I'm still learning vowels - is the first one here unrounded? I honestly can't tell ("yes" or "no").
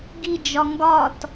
yes